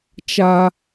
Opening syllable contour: high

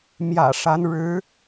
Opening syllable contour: low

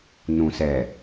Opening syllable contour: low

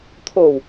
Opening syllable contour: low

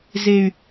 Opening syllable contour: high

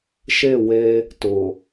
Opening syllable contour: falling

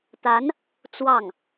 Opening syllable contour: rising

